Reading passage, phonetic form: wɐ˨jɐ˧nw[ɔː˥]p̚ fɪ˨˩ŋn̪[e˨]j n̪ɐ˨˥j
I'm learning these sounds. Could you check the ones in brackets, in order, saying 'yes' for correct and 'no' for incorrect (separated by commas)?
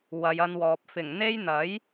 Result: no, no